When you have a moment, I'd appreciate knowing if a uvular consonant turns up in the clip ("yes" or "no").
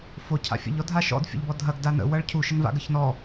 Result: no